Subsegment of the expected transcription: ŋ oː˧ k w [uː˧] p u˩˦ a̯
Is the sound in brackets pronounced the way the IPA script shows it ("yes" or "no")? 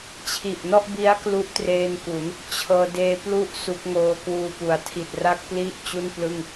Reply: yes